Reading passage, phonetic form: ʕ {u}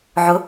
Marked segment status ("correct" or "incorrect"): incorrect